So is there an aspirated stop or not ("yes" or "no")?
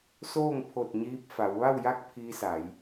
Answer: yes